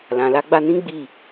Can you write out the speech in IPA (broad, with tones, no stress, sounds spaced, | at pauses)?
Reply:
l ã˨ l a˧ ɡ͡b a˧ n ĩ˦ ɡ͡b i˦˨